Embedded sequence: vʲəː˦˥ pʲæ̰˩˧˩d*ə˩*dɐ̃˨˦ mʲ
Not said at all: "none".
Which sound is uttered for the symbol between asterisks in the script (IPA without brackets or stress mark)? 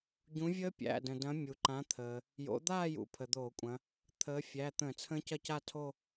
ə̃˩